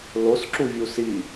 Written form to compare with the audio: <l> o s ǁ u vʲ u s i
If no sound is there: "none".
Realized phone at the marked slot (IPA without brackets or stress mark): l